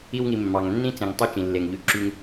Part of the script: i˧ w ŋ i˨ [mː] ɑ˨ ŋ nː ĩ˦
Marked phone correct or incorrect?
correct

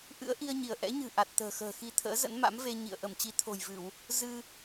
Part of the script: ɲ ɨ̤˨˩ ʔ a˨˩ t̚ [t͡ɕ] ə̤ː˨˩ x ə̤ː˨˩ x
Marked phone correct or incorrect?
incorrect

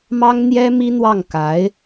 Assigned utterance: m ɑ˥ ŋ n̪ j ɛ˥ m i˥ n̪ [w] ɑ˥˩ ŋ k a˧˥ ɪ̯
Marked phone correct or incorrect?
correct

